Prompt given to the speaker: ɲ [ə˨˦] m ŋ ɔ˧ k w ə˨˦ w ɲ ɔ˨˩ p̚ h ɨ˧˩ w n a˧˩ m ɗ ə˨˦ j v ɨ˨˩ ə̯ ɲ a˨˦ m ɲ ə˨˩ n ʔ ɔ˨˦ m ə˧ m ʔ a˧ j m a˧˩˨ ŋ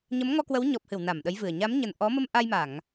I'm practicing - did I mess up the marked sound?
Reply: no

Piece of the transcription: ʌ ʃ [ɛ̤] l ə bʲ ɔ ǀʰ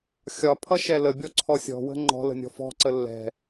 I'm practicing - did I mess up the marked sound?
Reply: yes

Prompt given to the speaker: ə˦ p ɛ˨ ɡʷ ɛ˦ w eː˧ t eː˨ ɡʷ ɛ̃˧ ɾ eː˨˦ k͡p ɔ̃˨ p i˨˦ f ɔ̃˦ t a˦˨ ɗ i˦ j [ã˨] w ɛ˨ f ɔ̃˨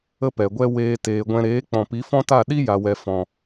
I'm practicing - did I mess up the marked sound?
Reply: yes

